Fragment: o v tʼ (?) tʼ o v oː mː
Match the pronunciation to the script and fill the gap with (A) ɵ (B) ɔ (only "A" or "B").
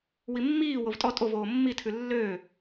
B